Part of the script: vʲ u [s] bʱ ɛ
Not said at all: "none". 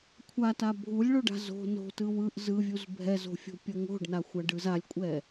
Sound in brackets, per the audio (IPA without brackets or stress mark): z